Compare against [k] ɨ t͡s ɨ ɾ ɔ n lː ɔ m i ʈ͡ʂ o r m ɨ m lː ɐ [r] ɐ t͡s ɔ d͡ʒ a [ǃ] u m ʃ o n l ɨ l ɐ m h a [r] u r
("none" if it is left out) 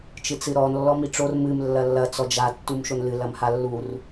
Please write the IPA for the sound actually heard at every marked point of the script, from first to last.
t͡ʃ, lː, tː, lː

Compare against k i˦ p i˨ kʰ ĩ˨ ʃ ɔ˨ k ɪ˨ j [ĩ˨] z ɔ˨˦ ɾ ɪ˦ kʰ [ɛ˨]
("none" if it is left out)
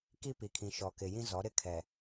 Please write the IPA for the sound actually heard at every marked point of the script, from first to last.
ĩ˦, ɛ˨

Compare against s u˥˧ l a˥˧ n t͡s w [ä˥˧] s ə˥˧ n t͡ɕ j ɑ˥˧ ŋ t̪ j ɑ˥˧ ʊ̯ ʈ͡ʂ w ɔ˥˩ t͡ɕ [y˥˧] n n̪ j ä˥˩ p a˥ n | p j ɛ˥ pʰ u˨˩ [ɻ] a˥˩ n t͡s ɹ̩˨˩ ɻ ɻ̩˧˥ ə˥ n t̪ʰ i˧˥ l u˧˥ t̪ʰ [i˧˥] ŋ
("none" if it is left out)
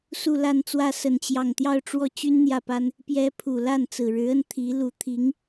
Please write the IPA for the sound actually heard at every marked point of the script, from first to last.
ä˥˧, y˥, l, i˧˥

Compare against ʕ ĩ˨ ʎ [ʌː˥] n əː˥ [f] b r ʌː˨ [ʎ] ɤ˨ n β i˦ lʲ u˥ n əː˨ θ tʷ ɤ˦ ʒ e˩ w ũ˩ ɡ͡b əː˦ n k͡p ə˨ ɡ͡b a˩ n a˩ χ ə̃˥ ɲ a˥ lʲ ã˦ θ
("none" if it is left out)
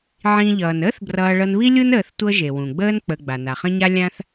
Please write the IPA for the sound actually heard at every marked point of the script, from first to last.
ʌː˩, θ, ɭ

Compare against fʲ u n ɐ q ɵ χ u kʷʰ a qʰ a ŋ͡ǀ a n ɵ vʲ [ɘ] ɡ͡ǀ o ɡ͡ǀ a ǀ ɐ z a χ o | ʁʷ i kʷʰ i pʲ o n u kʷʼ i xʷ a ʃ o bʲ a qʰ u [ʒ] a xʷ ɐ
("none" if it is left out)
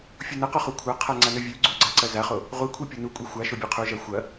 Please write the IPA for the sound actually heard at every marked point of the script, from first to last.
ʉ, ʒ

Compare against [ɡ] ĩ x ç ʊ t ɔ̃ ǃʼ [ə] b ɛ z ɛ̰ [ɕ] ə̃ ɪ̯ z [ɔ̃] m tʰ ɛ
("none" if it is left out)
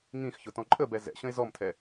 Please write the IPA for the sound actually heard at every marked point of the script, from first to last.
ŋ, ə, ɕ, ɔ

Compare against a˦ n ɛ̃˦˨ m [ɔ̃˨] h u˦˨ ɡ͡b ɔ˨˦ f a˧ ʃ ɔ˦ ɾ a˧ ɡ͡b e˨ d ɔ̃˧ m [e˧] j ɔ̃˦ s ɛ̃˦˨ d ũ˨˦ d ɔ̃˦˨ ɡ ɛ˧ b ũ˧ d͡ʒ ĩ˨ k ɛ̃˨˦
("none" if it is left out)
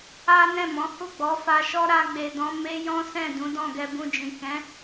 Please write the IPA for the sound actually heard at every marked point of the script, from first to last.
ɔ̃˨˦, e˦

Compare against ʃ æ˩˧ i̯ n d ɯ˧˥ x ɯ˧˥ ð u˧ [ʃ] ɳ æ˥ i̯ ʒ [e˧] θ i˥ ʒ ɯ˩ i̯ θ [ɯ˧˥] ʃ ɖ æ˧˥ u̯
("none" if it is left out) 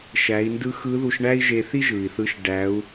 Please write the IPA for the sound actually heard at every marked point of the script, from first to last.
ʃ, e˧, ɯ˧˥

